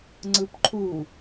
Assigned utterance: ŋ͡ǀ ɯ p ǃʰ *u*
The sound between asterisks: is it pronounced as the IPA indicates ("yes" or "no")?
yes